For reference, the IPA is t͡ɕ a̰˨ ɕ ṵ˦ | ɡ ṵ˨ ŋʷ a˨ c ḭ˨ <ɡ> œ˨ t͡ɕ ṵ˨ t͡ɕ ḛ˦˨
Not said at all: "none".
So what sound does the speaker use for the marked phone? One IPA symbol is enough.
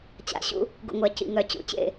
ŋ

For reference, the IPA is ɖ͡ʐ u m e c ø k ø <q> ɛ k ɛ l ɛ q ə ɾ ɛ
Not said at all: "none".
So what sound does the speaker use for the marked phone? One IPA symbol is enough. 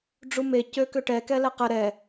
ʈ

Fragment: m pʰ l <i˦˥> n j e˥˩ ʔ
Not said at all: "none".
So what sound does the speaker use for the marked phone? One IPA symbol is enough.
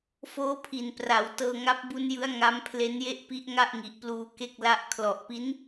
e˦˥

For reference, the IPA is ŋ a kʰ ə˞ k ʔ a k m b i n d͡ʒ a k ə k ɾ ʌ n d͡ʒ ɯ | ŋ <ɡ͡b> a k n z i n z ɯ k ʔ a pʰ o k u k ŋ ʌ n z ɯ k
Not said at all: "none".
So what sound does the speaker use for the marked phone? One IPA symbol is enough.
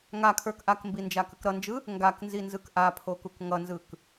ɡ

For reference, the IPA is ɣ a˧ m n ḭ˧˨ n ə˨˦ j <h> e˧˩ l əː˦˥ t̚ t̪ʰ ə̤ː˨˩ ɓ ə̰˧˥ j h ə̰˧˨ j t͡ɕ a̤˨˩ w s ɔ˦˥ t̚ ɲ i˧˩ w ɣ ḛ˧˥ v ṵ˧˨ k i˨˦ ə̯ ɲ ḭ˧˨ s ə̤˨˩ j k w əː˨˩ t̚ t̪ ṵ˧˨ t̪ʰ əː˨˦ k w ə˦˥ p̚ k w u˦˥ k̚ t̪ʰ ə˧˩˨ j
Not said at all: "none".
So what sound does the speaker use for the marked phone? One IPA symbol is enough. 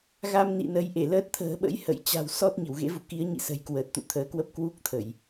ʔ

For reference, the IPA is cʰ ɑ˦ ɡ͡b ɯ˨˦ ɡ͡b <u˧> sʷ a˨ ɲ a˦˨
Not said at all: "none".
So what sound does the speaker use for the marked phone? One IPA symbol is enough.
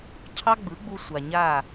u˧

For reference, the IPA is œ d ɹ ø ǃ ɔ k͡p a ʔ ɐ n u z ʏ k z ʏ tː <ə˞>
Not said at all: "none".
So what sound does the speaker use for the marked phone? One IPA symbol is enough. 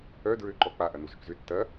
ɐ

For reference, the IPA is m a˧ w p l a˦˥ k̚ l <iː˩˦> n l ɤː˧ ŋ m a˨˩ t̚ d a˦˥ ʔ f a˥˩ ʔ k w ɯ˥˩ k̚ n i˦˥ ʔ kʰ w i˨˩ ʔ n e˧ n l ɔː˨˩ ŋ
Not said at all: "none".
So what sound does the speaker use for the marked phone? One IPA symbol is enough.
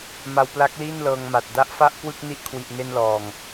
iː˥˩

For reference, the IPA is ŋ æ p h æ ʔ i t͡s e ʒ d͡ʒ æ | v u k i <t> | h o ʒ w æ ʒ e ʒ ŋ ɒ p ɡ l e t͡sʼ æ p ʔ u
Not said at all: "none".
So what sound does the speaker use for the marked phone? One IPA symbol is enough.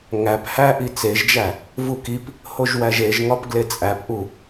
p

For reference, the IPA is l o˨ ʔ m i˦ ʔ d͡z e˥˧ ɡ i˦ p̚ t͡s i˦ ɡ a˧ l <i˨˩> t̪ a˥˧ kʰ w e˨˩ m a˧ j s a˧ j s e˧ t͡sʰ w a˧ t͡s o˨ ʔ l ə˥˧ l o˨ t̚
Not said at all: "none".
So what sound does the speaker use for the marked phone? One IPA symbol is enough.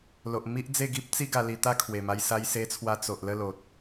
i˧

